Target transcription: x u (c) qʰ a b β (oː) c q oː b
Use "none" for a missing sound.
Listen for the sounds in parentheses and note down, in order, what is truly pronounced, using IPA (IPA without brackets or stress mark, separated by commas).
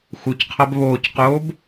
c, oː